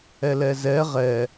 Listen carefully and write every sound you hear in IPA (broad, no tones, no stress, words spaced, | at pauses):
ɛlɛzɛ ʁɛ